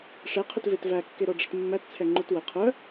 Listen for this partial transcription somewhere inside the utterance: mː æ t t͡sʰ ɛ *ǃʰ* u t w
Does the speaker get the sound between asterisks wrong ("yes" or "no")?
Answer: yes